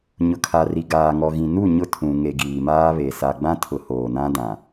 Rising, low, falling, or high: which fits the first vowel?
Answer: low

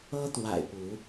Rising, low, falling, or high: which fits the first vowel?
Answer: high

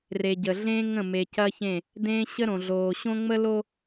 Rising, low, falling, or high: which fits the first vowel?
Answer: low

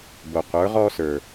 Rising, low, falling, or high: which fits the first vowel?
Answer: low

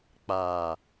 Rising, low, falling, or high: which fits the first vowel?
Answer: low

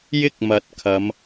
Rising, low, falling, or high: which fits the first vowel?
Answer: high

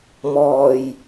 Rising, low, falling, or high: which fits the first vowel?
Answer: low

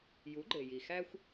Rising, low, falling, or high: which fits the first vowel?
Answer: rising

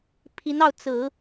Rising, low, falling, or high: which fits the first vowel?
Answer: rising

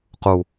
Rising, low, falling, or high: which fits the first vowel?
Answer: low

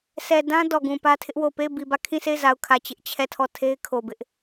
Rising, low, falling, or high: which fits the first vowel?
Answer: low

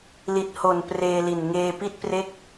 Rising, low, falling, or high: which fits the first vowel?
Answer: low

